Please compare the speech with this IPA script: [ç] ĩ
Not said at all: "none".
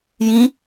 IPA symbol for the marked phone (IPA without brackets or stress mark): j